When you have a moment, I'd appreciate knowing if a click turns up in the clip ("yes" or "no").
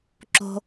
yes